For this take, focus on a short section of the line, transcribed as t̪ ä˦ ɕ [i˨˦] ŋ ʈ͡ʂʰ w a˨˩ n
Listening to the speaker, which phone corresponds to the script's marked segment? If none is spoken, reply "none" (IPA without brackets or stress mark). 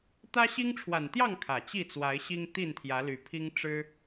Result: i˦